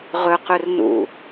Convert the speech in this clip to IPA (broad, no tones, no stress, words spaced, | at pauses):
ʁɵqɵrnṵ